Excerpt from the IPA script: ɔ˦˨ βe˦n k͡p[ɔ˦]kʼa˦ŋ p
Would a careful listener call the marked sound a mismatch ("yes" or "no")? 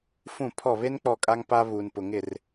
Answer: yes